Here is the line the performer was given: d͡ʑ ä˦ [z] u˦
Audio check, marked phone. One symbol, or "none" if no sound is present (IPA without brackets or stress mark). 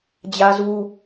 z